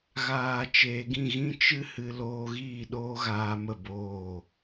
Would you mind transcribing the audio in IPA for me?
ɣ aː˨ t͡ʃ eː˨ ɡ ĩ˦˨ ɣ ĩ˦ t͡ʃ ɨ˦ h ɨ˧ l oː˧ ɣ iː˦˨ ɗ oː˦ ɣ aː˧ m ə˦˨ b oː˦˨

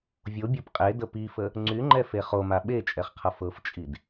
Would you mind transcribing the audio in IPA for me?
vʲ o bʲ ɤ p qʼ e d ə p i f ə | ŋ͡ǀ y ŋ͡ǃ ɛ f e χ o m a ɓ e t͡ʃʼ ɛ χ qʰ ʌ f ɤ f t͡ʃʼ i d

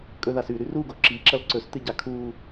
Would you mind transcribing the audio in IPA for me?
kʼ ɵ ð a s ʉ ɾ ʉ r u ɡ o ǁ i ǁ ɐ l ǀ ɵ s t ɨ ɟ a kʰ u

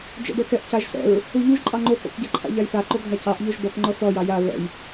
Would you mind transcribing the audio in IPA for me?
d͡ʒ ɛ̰ b ɛ k ɛ ʔ c a ʒ s ɛ̰ ɹ | u ʎ u ʒ ǃʼ ɑ ŋ͡ǃ o k ɛ̰ k ɟ a ǃʰ a̰ ʎ a j θ a ǃ o ɡʱ a c ɑ ʔ ʎ o ʒ b ɔ k ŋ͡ǃ ɔ θ ɔ j ɑ j a ɹ ɛ̰ j

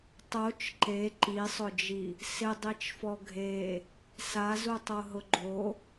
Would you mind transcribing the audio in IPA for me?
tˤ o t͡ʃ ǃ e ǃ i sˤ ʊ d͡ʒ i | s ɪ dˤ i t͡ʃ f ɔ ɡʱ e | s a z u tˤ o ɦ ʊ ɡ͡ǃ o

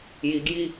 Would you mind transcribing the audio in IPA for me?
j i ɡ j i

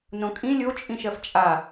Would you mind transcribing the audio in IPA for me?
n õ kʼ ĩ lʲ o t͡ʃʼ ĩ ʃ ɜ f t͡ʃʼ a

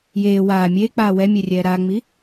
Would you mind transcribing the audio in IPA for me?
j eː w aː mʲ eː k͡p aː w ɛ mʲ e rʲ ɛː ɾ a ŋ͡m i

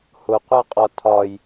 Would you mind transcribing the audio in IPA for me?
h ʊ qʷ æ qʼ ɒ tʰ ɒ j

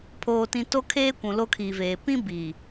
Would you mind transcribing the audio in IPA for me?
pʰ oː˨ t ĩ˨ t o˦ kʰ eː˦ kʷ ũ˨ l o˦ kʰ iː˨ v eː˨ p ĩ˦ b iː˨

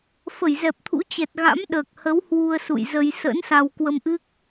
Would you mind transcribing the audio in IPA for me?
f ə˧˩ j z ɛ˨˩ p̚ t̪ʰ ṵ˧˥ t͡ɕ ɛ˨˩ t̚ ɣ a̰˧˥ m ɗ əː˨˩ k̚ h ə˨˦ w h w u˧ ə̯ s ṵ˧˨ j z ə˧ j s ə̰˧˥ n s a˧ w k w ə˧ m ʔ ɨ˦˥ k̚

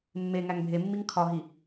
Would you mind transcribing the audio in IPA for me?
mː e ŋ æ ŋ bʱ e mː i ŋ kʰ ɒ ɦ i

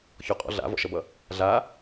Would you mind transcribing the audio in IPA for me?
ç ɔ qʼ ɔ̰ ɮ a̰ v ɔ̰ ʃ ʌ b ʌ | ɮ a

